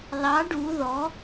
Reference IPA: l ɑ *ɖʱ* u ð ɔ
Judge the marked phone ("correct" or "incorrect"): incorrect